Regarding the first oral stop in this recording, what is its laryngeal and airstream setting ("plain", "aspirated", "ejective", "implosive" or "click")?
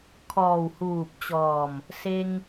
aspirated